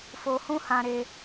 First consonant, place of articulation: labial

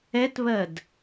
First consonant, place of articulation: alveolar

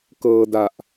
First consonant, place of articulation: velar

